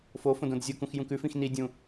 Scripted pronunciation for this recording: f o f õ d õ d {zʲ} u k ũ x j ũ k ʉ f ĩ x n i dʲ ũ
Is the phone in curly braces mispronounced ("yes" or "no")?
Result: no